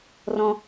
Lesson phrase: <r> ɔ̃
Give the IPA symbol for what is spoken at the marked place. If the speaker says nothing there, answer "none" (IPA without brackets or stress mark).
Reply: r